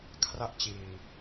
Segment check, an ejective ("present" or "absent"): absent